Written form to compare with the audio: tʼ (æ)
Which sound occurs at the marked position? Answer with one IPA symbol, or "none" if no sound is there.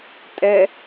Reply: ɛ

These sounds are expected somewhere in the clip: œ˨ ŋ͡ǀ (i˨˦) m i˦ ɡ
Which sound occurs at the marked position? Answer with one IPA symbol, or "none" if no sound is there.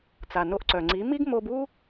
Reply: i˨˦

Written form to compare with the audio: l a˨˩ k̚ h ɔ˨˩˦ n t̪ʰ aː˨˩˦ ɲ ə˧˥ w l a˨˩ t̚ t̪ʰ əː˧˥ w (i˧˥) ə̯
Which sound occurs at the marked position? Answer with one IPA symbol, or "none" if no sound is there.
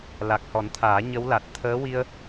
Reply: i˧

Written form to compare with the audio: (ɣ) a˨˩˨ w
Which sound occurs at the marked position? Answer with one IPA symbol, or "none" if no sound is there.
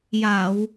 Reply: j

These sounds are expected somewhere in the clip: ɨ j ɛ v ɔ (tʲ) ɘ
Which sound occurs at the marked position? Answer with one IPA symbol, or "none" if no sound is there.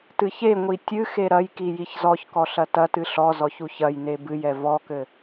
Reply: k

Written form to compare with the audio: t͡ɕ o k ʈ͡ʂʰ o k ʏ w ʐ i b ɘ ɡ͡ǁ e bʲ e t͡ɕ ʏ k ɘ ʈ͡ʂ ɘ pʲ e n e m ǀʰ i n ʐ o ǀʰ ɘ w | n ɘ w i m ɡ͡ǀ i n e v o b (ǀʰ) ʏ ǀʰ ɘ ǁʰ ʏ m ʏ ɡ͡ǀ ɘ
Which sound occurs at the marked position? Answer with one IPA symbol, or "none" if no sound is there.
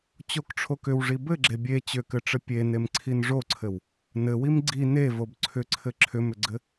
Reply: ǀʰ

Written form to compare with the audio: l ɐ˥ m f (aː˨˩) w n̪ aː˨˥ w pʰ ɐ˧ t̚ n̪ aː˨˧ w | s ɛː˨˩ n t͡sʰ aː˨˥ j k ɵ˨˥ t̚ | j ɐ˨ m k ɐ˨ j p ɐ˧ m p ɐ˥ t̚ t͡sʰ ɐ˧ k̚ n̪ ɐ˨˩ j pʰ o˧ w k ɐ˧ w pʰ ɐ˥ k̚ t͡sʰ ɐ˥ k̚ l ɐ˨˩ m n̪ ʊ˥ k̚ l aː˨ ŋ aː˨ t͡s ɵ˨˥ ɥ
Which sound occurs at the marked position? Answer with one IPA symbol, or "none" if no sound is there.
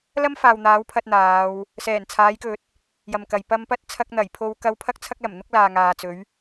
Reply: aː˨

